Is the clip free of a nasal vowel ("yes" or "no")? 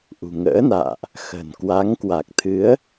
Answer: yes